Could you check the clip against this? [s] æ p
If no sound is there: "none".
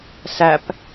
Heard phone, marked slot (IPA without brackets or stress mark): s